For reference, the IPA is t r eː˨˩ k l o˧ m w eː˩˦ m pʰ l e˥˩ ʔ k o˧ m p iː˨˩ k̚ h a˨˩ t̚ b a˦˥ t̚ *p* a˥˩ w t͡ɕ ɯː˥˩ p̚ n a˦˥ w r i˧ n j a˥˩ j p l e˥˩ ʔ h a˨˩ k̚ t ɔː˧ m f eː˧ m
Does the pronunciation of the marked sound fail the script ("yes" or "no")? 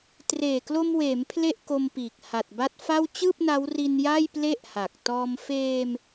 yes